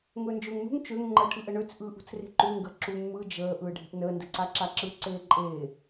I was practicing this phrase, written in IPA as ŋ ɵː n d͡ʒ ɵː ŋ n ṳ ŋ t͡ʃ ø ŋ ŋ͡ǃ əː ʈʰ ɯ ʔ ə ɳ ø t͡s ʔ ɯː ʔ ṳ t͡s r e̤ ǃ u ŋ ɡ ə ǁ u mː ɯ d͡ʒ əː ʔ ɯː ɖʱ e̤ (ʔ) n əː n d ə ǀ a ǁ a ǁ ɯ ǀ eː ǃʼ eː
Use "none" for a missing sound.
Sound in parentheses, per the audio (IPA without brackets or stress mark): ʔ